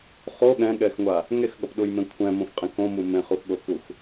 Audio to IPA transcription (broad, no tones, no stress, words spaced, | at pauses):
χo ɠɛ̃ɠɛxŋʷa | ŋexɠʌpɗujmẽ kʷʰɛ̃mõfqʼẽ kõmu mẽχuxɠokux